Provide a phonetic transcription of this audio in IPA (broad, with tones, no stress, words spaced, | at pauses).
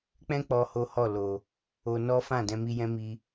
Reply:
k͡pɛ̃˦ k͡pɔ˦ho˦hɔ˦˨ lo˨ | o˧nɔ˦fã˦˨ dɛ̃˧mi˧jɛ̃˦ mi˧